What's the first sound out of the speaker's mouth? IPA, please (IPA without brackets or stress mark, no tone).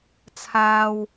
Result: t͡sʰ